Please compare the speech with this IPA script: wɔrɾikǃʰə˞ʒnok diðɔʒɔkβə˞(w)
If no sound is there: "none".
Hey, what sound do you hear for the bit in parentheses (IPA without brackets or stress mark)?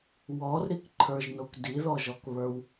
w